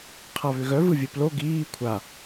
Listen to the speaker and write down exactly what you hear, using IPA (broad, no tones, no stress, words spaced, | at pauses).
qʰaβʏɣœ vɯvʲɵplo ɡiː kʷʰa